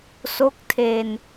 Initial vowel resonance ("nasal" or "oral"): oral